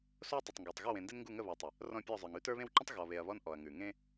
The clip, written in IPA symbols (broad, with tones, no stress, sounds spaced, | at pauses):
s o˦ tˤ ə˨ tˤ ŋ ɡ ə˞˨ tˤ ɣ o˦˨ w ẽ˨ n d i˦ n ŋ ɡ u˦˨ ŋ ə˦˨ β ɔ˨ tˤ ə˨ | r ɔ̃˦˨ pʲ ɔ˦˨ zˤ ə˞˨ ŋ ʉ˦ t ə˞˦ β ẽ˦ w ǃ ə̃˦ tˤ ɣ ɔ˨ β e˨ ɐ̯ β ɔ˦ n ʔ ɔ˨ ɐ̯ ŋ ʉ˨ ŋ ẽ˦